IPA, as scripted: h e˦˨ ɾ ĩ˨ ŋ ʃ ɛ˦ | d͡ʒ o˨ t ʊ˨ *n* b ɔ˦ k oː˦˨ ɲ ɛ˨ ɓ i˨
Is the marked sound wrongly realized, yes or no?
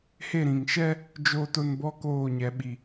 no